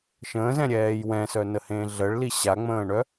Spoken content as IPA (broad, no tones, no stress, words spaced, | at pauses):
ʃə̃ːzɛ̃ɾʲɛːj wɛ̃sœnəhẽː ɮəɭli ɕaŋ͡mə̃ːɳœ